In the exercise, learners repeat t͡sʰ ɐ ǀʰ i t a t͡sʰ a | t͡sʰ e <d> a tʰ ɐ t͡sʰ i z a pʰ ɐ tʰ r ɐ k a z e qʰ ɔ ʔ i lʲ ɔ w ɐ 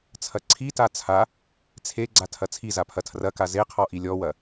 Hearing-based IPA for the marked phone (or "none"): ɡ͡ǀ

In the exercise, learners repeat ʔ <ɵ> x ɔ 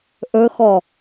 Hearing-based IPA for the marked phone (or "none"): ɵ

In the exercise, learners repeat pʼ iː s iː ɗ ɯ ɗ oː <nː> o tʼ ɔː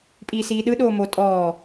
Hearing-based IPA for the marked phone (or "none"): m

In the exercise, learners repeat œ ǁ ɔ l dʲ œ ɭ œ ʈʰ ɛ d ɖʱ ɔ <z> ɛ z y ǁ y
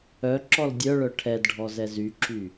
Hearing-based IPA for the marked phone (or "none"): z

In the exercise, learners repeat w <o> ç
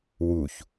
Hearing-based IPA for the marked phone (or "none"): u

